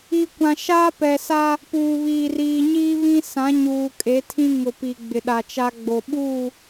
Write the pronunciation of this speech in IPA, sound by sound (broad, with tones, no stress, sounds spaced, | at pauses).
i˨ kʷ ã˨ ʃ aː˦ p ɛ˨ s a˦ | p uː˨ β iː˨ r iː˨ ɲ iː˦ β ĩ˦ s ã˨˦ ɲ uː˨ kʼ e˨˦ tʰ ĩ˦ ŋ ʊ˨ p i˨ ɡ͡b ɪ˨ ɗ a˨ t͡ʃ a˦ ɡ͡b o˨ ɓ uː˦˨